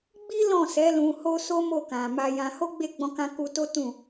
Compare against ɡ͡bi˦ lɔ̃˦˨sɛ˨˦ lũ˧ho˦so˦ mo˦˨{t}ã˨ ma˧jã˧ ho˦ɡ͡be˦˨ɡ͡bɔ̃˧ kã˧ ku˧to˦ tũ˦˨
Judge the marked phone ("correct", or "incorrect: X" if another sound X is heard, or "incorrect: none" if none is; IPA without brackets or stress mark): incorrect: k